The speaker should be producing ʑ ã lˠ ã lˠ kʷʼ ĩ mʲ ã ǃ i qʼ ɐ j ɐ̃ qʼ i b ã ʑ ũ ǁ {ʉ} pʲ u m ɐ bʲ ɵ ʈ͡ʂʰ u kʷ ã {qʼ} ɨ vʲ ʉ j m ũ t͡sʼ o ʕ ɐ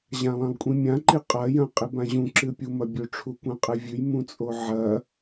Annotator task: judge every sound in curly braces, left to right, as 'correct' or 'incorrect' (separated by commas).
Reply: incorrect, correct